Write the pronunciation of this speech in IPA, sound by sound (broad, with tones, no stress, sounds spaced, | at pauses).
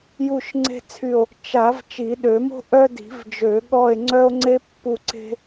j u˦˨ ʃ ŋ͡ǀ e̤˦ t͡sʰ y˦˨ o̯ | t͡ʃ a˨˩˦ v t͡ʃ i˨˩˦ ɗ ø˨˩˦ m o̤˦ ʔ œ˦ d i̤˨˩˦ v d͡ʒ ø˨˩˦ ɠ ɔ˦˨ e̯ ŋ͡ǀ œ˦ o̯ ŋ͡ǀ e˦ pː u˦˨ ǀ e̤˦